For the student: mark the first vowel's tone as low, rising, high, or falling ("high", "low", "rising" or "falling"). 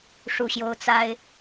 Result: falling